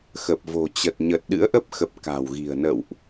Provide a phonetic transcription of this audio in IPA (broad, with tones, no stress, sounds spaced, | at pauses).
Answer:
x ə˨˩ p̚ v o̤˨˩ t͡ɕ ə˨˩ t̚ ɲ ə˨˩ t̚ ɗ ɨ̰˧˥ ə̯ ʔ ə˦˥ p̚ x ə˨˩ p̚ k a̤˨˩ w ɣ i̤˨˩ ə̯ n ə̰˧˨ w ʔ